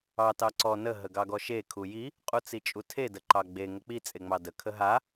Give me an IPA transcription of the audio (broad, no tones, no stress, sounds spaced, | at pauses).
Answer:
ɑ t ɑ ǀ ɔ n ə ɦ ə ɡ ɑ ɡ ɔ ʃ e kʰ u j i | qʼ u t͡s i t͡ʃʼ u tʰ e d ə ǃ ɑ ɡ͡b e ŋ ə k͡p i t͡sʼ e ŋ͡m ɑ d ə kʰ ə ɦ a